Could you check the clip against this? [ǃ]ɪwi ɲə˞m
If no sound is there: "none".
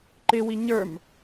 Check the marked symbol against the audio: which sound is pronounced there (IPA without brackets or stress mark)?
ǃ